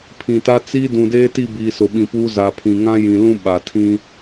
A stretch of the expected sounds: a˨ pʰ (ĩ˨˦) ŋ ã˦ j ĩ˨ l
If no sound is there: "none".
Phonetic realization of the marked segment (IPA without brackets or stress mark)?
ĩ˨